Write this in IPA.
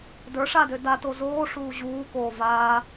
d ə˞ ʂ a d ø d a t o z oː ʂ uː ʑ uː k oː v a

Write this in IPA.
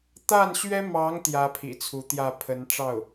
t̪ a˥˩ n ɕ ɥ ɛ˥ m ɑ˧˥ ŋ t̪ j ä˥ pʰ ḭ˨˩ t͡sʰ u˧˥ t̪ j ä˥˩ pʰ ə˧˥ n ʈ͡ʂ ɑ˥˩ ʊ̯

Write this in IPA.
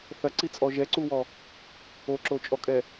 θ ɐ ǀ i t͡sʼ ɔ ʒ ɛ ǀ u w ɔ | o ǁ o t͡ʃʼ ɔ kʼ ɛ

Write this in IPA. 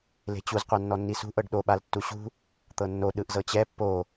l e̤ t͡ɕ u z qʷ a nː ɔ nː i s ṳ ʔ ɤ ɖ ɗ o ɓ a l tː u ɕ ṳ | t̪ ɤ nː o ɗ ɯ ʔ z ɤ t͡ɕ ɛ pː o

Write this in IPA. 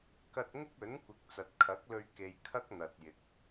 k ɐ˧ t̚ ŋ ɪ˥ k̚ ɵ˨˥ n kʷ ɪ˨˥ k̚ t͡s ɐ˨ t̚ kʰ ɐ˨˥ k̚ l ɵ˧ ɥ k e˧ j kʰ ɐ˥ k̚ n̪ ɐ˨ t̚ j ɪ˨˥ k̚

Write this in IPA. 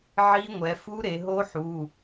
ʕ i˦˥ ŋʷ ɛ˩˧ f u˦˥ ɾ e˩˧ ɦ o˦˥ ħ u˩˧˩

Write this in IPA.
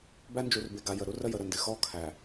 b æ˦ n d͡ʒ u˨ r b e˨ ɡ a˨ j ə˨ ɾ u˦ r ə˦ j ə˨ ɾ ə˦˨ n d ɪ˨ x ɔ˦ kʰ æ˨

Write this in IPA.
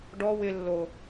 ɖ ɔ w ɪ lː o

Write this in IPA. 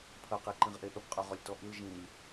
pʰ ɐ q e ǃ ĩ ʁ ʔ e ʔ ə b qʼ ø ʁ ɔ lʲ t ɔ ʔ i l ʒ ĩ lʲ

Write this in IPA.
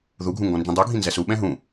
ð u ɡʱ ũ ŋ ɡ ɔ̃ n d͡ʒ ĩ dˤ u ɡʱ ĩ n z ɛ s u ɓ ɛ̃ ɦ ũ

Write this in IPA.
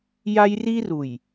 j a˦ j r i˦ r u˨ j

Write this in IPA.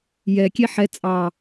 j ɛ kʲ e ħ ɛ t͡sʼ ɑ

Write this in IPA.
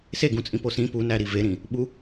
s e ɡ ũ t͡sʼ ĩ p o s ĩ p u n æ ɾ i v e ɾ ĩ | ɓ u

